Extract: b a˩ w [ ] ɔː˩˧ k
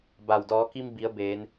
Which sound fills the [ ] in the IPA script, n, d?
d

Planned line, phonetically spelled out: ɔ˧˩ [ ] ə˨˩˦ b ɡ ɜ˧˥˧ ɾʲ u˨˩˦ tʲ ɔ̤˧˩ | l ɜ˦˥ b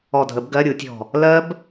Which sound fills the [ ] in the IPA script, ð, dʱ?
dʱ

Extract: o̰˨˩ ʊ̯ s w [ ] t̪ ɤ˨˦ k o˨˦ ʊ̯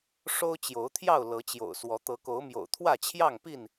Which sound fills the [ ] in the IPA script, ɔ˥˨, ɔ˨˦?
ɔ˨˦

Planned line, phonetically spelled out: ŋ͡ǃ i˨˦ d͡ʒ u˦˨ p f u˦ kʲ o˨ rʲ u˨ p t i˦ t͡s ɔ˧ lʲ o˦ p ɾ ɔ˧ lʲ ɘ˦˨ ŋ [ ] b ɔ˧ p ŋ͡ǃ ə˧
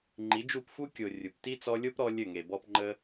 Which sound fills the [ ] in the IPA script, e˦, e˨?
e˨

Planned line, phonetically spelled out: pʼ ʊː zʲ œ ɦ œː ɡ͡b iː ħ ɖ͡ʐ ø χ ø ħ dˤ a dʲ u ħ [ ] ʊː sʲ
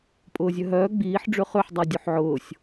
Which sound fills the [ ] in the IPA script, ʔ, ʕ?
ʕ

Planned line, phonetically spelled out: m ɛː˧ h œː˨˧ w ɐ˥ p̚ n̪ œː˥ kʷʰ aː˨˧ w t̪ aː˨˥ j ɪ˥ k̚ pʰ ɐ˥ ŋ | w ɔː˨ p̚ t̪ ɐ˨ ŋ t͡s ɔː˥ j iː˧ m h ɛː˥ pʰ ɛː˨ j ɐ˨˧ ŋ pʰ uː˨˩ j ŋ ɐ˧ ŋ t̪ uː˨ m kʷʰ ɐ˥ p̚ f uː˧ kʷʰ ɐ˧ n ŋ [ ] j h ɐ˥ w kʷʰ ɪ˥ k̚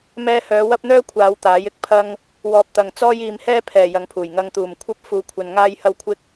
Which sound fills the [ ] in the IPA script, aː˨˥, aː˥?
aː˥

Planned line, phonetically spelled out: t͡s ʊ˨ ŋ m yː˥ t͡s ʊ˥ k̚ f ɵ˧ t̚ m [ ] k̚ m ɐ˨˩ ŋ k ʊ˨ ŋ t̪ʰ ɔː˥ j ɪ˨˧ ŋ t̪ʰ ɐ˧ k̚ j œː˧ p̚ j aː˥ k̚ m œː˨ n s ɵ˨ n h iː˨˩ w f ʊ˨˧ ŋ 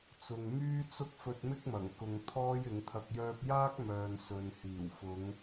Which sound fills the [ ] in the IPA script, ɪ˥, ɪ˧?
ɪ˥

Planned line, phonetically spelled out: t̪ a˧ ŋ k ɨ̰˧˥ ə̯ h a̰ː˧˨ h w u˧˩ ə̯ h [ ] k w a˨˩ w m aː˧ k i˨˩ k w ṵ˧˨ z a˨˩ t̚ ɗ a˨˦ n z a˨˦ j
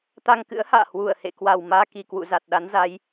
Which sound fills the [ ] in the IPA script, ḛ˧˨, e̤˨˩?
ḛ˧˨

